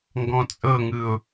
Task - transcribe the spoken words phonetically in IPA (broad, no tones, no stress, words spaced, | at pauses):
ŋɡɔ̃t͡sʼɤŋɯʊ̯